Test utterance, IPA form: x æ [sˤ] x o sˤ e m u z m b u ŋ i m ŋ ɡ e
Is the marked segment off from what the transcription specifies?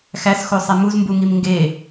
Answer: yes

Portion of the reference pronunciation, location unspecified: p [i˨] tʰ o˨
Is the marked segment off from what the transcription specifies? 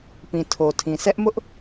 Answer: yes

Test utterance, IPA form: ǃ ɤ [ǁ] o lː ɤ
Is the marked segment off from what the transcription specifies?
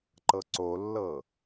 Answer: yes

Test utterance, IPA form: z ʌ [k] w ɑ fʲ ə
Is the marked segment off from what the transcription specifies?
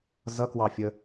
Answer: no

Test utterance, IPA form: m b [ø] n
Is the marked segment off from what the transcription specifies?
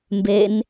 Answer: yes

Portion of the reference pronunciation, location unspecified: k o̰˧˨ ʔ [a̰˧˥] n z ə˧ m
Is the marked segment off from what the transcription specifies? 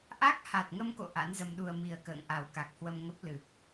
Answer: no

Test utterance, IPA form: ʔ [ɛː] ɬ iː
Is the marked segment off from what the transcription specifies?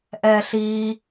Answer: no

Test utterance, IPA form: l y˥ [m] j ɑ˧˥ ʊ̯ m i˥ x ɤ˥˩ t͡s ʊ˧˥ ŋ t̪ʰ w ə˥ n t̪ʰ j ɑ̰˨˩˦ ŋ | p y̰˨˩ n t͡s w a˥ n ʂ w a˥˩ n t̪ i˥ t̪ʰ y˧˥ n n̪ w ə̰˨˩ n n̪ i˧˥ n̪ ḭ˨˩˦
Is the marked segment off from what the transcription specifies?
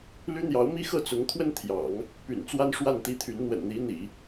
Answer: yes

